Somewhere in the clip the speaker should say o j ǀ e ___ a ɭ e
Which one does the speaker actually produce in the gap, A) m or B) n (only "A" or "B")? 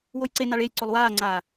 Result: B